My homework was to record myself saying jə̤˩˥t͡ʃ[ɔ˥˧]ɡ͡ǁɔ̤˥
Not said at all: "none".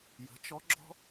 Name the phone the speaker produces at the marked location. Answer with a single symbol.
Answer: ɔ˧˥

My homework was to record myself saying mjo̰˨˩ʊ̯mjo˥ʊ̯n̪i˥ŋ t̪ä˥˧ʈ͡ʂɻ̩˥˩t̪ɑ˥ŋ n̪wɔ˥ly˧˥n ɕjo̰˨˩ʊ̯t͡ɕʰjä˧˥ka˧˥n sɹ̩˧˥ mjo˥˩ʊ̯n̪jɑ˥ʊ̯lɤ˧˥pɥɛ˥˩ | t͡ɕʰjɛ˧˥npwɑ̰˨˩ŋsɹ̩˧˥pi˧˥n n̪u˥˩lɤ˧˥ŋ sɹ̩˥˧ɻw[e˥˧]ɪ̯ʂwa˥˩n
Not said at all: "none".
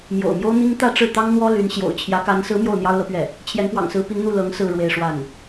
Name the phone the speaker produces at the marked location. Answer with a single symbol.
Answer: e˥˧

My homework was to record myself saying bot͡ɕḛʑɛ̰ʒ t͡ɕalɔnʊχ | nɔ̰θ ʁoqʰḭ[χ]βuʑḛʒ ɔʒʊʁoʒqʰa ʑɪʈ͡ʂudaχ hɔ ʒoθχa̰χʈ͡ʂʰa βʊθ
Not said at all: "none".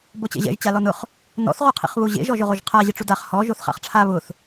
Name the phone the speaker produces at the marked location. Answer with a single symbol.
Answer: χ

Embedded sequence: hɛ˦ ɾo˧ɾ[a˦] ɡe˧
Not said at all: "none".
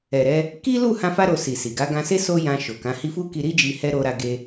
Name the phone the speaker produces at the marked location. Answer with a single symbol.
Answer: a˧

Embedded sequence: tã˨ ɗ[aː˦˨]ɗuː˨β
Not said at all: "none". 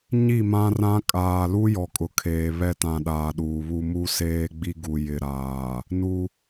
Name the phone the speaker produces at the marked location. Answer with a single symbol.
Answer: aː˨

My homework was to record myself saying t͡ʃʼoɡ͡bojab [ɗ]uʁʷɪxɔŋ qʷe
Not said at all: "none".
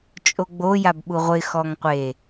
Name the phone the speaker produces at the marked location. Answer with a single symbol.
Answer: ɓ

